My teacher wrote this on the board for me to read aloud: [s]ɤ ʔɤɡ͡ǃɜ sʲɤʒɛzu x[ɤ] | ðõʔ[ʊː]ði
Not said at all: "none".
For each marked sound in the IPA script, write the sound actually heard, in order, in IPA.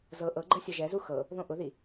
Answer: z, ɤ, ʊ

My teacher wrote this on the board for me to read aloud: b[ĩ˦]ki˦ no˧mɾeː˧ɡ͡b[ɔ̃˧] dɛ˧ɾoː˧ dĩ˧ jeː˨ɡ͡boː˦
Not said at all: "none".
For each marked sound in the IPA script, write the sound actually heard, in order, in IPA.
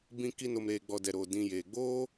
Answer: ĩ˦, ɔ˧

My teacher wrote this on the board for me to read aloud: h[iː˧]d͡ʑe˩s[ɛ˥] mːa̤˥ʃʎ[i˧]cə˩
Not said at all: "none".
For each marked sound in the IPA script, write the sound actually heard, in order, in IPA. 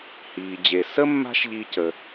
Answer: iː˩, ə˥, i˧

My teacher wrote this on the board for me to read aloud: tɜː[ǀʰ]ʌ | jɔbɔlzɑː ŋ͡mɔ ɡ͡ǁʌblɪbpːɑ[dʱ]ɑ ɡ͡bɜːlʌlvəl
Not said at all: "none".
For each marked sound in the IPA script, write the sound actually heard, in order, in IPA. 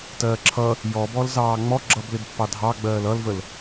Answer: ǁʰ, dʱ

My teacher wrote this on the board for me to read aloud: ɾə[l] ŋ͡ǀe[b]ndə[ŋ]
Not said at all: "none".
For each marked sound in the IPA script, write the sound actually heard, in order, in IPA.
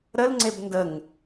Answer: l, b, ŋ

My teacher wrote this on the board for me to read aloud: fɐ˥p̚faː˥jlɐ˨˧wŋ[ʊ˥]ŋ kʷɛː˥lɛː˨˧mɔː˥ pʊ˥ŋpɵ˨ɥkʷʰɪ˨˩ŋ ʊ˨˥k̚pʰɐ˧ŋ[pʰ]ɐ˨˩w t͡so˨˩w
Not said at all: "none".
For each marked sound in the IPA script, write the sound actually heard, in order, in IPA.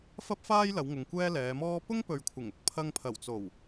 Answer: ʊ˨, pʰ

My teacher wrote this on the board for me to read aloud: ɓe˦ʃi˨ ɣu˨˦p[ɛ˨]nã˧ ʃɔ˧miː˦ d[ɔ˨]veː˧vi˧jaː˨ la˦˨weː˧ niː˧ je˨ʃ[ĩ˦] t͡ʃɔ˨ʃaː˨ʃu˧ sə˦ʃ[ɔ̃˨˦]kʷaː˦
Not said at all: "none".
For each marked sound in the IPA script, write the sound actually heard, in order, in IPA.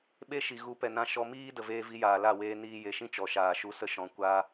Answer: ɛ˨, ə˨, ĩ˦, ɔ̃˨˦

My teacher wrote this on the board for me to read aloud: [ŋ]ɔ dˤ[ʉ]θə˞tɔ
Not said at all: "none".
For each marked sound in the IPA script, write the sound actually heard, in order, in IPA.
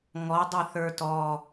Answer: ŋ, ʉ

